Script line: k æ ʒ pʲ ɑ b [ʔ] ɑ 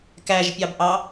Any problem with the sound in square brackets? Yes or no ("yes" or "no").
no